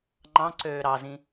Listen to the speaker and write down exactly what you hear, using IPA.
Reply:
ŋ͡ǃ ɑ̃ ǀ øː ɾ ɑ z ĩ

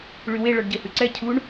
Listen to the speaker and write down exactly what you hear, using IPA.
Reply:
ɭ y w e ɭ ɔ ɖ ɟ e h ʉ ǀ ɛ cʰ u ɳ

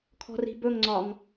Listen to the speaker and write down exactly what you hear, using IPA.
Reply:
kʰ ɔ̤ r i̤ b ɵ ŋ ŋ͡ǀ ɒ ŋ

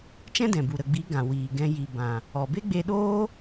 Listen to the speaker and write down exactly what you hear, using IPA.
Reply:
t͡ʃ ɛ̃˦ d ɛ̃˨ b u˨ ɾ ə˨ ɡ͡b i˨˦ ɡ ã˨ w iː˨ ɡ ɛ̃˧ j i˨ b ã˨ | ɔ˨ b e˦ ɡ͡b e˧ ɗ oː˦

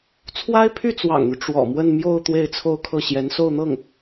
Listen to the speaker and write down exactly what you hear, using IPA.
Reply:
t͡sʰ w a˥ ɪ̯ pʰ y˥˩ t͡s w ɑ̰˨˩ ŋ n̪ y˦ ʈ͡ʂ w ɔ̰˨˩ m w ə˥˧ n m j o˥˧ ʊ̯ t̪ w e˥˧ ɪ̯ t͡sʰ o˥˧ ʊ̯ kʰ ɤ˥˩ ɕ j ɛ˧˥ n s o˥˧ ʊ̯ n̪ ɤ˥˩ ŋ

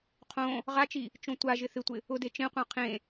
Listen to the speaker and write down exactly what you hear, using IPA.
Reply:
qʰ õ | ʁ a t͡ʃ i | t͡ʃ õ tʷ a ʒ ɪ θ ɪ tʷ ɪ | ʊ d e t͡ʃ ẽ qʷ ã qʰ ẽ

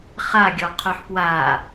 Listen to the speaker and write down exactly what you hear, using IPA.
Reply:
χ a ɡʲ ɔ qʰ o ħ p w a

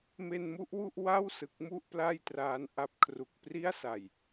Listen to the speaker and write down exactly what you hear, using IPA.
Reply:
m e˧ n m u˥˩ ʔ w u˥˩ ʔ w a˥˩ w s ɯ˨˩ k̚ m u˥˩ ʔ p l a˥˩ j t r aː˧ n ʔ a˦˥ p̚ kʰ r u˨˩ k̚ p r i˥˩ a̯ s a˨˩ j

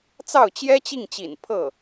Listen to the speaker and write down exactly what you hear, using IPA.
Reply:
t͡s ɑ˥˩ ʊ̯ t͡ɕ j ɛ˥ t͡ɕ i˥˩ ŋ t͡ɕ ḭ˨˩ n pʰ ɤ˥˩

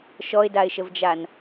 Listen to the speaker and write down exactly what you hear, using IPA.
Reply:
ʃ ɔ ɪ̯ d a ɪ̯ ʃ ə v d͡ʒ a n

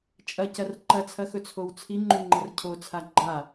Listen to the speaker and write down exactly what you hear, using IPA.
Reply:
t͡ʃʼ ɐ c ɐ r ǃ ɐ t͡sʰ ɐ x ɵ t͡sʰ o w t͡sʰ i ŋ͡ǃ ʉ ŋ͡ǃ ɐ r cʰ o t͡sʰ a ɡ͡ǃ a

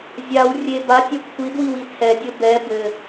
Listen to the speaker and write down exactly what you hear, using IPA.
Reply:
zʲ a w rʲ e b a tʲ ɛ kʷʰ i d w i w i tʰ ɛ dʲ ɘ b ɛ b ɘ

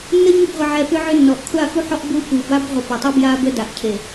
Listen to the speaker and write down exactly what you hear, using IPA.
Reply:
nː ə˦ ɲ ʏ˦˨ b ʁʷ ə˨ ʕ ɛ˨ p ʏ˦ ʕ ʏ˦ nː ɔ˨ ʔ kʷʰ a˦˨ x u˦ ħ ɔ˦ ʔ b u˦ p u˨ b a˦ b ʁʷ ə˨ p ə˨ tˤ u˦ b j a˦ b ə˦ d a˨ ʔ cʰ e˨

